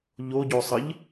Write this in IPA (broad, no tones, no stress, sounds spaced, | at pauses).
ʎ o ɟ o sˤ ə ʎ